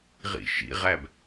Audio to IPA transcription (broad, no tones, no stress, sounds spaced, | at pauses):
ʁ ḭ ʃ ḭ ʁ æ b